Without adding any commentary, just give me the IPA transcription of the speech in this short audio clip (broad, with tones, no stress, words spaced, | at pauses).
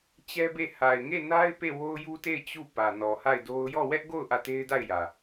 t͡ɕɛ˦be˦˨ ha˨ɪ̯ŋe˦˨ na˦ɪ̯ pe˦˨wo˦ʊ̯ju˦te˦˨ɪ̯ t͡ɕu˦˨ pä˨nɔ˨ha˦˨ɪ̯do˦ʊ̯ jɔ˦˨ wɛ˦ʔɡo˦˨ʊ̯ ʔä˦˨te˦ɪ̯da˦˨ɪ̯jä˨